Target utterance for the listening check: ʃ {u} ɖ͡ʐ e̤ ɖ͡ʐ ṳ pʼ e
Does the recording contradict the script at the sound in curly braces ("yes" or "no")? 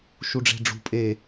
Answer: no